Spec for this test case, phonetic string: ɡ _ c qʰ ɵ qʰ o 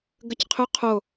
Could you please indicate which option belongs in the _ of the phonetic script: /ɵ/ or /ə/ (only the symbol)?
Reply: ə